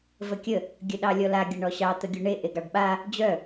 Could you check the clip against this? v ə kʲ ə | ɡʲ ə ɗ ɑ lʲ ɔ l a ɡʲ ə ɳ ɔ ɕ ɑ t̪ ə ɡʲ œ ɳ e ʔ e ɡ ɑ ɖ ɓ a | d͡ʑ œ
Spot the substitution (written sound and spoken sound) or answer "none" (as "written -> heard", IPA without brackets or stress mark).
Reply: none